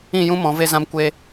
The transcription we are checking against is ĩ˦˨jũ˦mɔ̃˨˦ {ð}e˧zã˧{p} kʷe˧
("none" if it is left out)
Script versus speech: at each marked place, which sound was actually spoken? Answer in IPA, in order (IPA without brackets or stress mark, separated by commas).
v, m